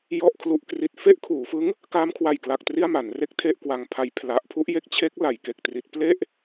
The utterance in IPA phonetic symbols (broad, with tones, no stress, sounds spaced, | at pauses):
j ɔ˥˩ ʔ kʰ l u˦˥ ʔ k r i˨˩ t̚ f e˥˩ ʔ kʰ uː˩˦ f ɯ˦˥ ŋ | k aː˦˥ m kʰ w a˨˩ j k l a˨˩ k̚ t r i˥˩ a̯ m a˩˦ n r e˥˩ k̚ tʰ e˥˩ ʔ k w a˧ ŋ pʰ a˧ j pʰ l a˦˥ ʔ pʰ u˦˥ ʔ j e˥˩ k̚ t͡ɕʰ e˦˥ k̚ l a˩˦ j k e˨˩ k̚ t r i˦˥ t̚ p l e˥˩ ʔ